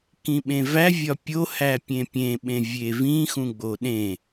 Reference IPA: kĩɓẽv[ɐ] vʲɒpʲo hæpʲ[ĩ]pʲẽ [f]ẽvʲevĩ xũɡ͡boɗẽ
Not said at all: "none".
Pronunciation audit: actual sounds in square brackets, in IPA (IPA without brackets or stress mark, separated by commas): æ, ẽ, ɓ